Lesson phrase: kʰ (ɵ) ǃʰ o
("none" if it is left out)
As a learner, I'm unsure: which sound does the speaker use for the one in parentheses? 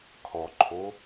ɔ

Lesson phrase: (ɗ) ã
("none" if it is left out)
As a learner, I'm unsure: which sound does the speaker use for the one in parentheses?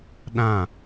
ɗ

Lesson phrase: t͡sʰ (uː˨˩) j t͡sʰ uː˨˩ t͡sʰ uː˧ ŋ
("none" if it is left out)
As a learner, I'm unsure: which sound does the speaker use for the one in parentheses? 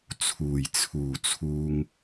uː˨˩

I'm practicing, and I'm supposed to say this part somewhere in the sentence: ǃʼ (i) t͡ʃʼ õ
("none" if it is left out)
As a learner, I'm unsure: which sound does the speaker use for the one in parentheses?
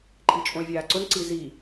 i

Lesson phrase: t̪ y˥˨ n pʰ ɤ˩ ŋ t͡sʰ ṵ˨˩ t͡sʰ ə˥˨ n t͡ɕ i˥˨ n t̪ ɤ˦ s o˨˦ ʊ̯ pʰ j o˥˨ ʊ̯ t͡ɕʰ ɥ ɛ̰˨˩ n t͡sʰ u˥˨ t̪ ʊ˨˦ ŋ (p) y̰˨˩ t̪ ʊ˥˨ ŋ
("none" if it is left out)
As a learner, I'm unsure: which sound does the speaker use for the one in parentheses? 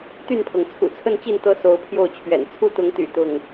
t̪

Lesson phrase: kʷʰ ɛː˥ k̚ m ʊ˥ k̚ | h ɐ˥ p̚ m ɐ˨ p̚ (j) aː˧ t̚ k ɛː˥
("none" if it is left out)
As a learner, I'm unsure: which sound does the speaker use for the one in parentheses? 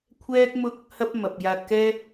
j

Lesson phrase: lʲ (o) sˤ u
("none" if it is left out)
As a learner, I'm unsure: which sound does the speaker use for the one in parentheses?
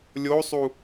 o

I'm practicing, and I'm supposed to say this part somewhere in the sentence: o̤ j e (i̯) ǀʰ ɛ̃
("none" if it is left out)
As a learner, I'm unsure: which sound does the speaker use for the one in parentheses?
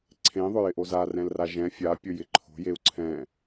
u̯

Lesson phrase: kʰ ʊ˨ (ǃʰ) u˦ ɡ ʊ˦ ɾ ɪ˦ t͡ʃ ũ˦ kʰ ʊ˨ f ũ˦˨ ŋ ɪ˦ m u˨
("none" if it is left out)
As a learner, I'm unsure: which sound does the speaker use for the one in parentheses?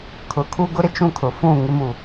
kʰ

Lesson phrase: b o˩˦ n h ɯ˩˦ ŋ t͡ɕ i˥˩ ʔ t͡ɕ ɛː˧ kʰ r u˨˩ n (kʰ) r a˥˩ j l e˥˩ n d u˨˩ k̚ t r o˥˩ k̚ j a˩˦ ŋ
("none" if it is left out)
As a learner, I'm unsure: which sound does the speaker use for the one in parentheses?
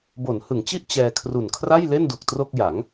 kʰ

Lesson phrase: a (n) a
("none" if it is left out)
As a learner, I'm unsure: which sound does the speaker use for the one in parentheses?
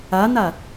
n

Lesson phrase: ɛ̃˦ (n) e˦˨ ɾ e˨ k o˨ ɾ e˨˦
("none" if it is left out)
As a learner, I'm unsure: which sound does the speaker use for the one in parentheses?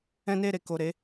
n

